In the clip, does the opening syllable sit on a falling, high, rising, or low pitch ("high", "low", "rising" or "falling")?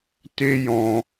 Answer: high